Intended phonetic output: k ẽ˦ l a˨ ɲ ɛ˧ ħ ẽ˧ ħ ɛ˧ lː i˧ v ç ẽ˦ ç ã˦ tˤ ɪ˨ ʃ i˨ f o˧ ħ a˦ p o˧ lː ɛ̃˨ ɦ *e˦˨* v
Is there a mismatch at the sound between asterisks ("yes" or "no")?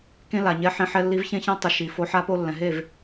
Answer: no